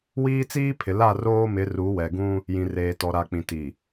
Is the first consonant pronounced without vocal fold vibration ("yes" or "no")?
no